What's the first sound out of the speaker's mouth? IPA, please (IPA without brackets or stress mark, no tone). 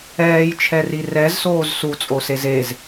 ɛː